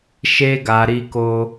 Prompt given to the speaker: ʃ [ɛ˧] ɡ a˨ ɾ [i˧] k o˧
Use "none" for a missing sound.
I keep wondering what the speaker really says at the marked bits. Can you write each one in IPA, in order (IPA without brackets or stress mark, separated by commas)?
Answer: e˧, i˧